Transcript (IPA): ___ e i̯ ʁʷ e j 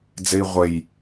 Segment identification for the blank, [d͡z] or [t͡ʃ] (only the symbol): d͡z